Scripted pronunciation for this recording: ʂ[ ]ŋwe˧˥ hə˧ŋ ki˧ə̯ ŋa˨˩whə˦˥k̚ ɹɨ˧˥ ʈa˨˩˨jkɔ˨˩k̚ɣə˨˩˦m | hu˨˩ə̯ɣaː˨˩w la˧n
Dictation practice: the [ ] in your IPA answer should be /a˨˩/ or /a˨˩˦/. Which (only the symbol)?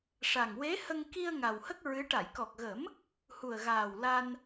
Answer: a˨˩